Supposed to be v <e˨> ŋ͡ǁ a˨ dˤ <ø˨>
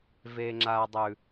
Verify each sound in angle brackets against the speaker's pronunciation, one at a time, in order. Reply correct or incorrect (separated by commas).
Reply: correct, incorrect